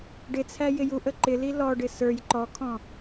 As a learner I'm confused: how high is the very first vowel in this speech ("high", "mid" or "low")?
high